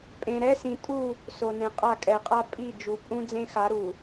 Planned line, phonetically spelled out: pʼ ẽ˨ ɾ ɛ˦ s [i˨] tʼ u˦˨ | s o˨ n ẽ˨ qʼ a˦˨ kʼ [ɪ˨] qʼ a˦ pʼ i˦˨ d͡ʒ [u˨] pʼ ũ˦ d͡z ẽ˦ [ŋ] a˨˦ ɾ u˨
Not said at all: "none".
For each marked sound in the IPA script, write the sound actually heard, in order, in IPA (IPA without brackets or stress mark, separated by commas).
ĩ˨, ɛ˨, u˨, x